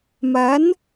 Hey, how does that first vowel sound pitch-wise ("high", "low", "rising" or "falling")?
rising